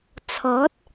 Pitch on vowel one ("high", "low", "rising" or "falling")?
rising